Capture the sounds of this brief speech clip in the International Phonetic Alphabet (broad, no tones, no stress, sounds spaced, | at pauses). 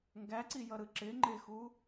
ŋ ɡ æ ǀ i j ʌ ɾ ɯ ǁ ɪ ŋ͡ǃ ɪ x u